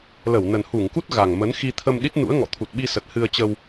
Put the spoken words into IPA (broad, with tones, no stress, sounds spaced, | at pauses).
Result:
l ə˧˩ w n ə˨˩ n h u˧˩ ŋ k u˦˥ t̚ ɣ a˨˩ ŋ m ə˨˦ n x i˧ t̪ʰ ə˧ m ɗ i˦˥ t̚ n ṵ˧˥ ə̯ ŋ ɔ̰˧˨ t̪ʰ u˨˩ t̚ ɓ i˧ s ə˨˩ t̚ h ɨ˧ ə̯ t͡ɕ ə˧ w